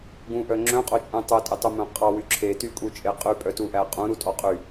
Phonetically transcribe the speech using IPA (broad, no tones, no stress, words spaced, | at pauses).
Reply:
ɡũʔœ ŋ͡ǁœ̃qʼot͡ʃʼũ tˤœtʼetˤɵmœ̃ qʼɑwy ǁʰetykʼut͡ʃʼe qʼypʼœtuʔæ qʼũɾutʼɔ qʼy